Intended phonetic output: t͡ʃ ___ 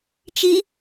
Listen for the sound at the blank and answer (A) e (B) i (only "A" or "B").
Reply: B